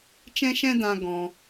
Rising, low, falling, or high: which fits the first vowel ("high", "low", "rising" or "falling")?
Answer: high